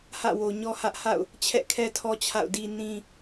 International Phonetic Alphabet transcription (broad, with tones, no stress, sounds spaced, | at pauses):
h ä̰˦˨ w o˨ ɲ ɔ˦ h ä˦ ʔ h a̰˦˨ ʊ̯ | t͡ɕʰ ɛ̰˦˨ kʰ ɛ˦ tʰ ɔ˦ t͡ɕʰ a̰˦˨ ʊ̯ d i˦ n ĩ˦